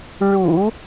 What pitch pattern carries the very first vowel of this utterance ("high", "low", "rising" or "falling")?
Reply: low